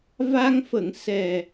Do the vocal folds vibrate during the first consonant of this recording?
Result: yes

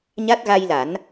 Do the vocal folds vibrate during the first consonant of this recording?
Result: yes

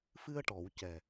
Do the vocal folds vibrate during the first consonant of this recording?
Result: no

